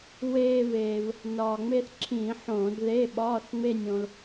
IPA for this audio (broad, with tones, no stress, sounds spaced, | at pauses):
w eː˧ v eː˩ v | n ɒː˩ ŋ͡m e˥˧ θ ǁʰ ĩː˧˩˧ ħ õː˧˩˧ d ð e˧˥˧ ɓ ɒː˧˥˧ θ ŋ͡m e˥˧ nʲ õ˧ l